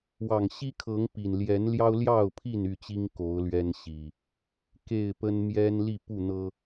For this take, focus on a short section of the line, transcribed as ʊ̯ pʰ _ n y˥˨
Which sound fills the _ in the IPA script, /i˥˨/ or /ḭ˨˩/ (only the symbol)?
i˥˨